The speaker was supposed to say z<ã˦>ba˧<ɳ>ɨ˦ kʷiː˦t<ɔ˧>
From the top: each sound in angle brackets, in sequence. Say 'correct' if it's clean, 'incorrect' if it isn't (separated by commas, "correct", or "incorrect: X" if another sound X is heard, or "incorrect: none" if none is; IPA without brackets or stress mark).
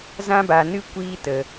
correct, incorrect: n, incorrect: ə˧